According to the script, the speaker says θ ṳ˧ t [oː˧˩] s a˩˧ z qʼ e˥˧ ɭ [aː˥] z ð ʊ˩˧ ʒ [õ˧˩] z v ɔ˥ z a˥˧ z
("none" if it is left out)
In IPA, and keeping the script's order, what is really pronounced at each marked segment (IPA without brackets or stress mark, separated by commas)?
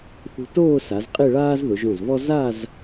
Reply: oː˥˧, aː˥, õ˧˩